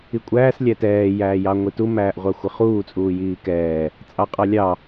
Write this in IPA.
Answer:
i kʷʼ æː s lʲ æ t ɛː j æː j ɑ ŋʷ i t u m æː ʔ ʁʷ ɑ xʷ ɪ χ uː t͡sʼ uː j iː k ɛː | t͡sʼ ɑ qʼ ɑ lʲ ɑ

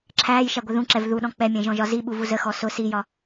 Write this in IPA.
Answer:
ǁʰ æː j ʃ æ ɡʷ ɪ ð ũ ǁ ɛ v ð u ɗ ɔ̃ k͡p ɛ mʲ ɛ̃ ʒ ɔ̃ ʒ ɒ z i ɓ u v u z ə x ɔ s ʊ s i j ɒ

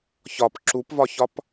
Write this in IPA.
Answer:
ç ɒ p ǁ u p v ɒ ç ɒ p

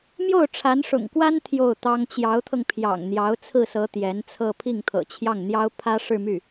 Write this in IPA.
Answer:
m j o˥˩ ʊ̯ ʈ͡ʂʰ a˧˥ n ʂ ʊ̰˨˩ ŋ k w a˥ n t̪ʰ j o˥˩ ʊ̯ t̪ ɑ˥ ŋ t͡ɕ j ɑ˧˥ ʊ̯ t̪ʰ ɤ˧ ŋ pʰ j ɑ̰˨˩ ŋ n̪ j ɑ˧˥ ʊ̯ t͡sʰ ɹ̩˥˩ s ɤ˧˥ t̪ j ɛ˧˥ n t͡sʰ ɤ˥˧ pʰ i˥˩ ŋ t̪ʰ ɤ̰˨˩ t͡ɕʰ j ɑ˥˩ ŋ n̪ j ɑ˥ ʊ̯ pʰ ä˥ ʂ ɻ̩˥˧ m y˥˩

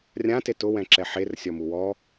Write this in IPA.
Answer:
rʲ ã t e t ʊ w ɛ̃ ǁ ɛ ħ e r sʲ ɔ m u w ɔ

